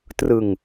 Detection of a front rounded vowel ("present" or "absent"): absent